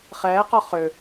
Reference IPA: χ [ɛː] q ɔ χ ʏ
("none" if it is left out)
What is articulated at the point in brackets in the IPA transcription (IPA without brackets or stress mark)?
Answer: ɛː